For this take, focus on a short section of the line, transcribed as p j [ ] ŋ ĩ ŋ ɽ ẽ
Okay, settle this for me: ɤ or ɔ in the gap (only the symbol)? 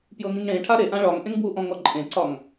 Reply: ɤ